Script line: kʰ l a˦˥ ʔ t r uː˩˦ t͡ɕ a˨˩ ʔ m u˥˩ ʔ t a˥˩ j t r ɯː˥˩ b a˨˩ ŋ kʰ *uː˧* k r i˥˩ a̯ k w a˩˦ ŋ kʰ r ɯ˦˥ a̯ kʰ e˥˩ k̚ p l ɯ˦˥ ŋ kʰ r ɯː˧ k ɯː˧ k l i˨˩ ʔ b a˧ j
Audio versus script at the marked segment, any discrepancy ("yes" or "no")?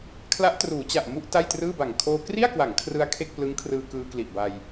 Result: yes